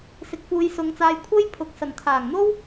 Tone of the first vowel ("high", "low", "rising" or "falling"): rising